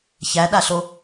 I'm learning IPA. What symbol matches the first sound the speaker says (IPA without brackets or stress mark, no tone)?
ç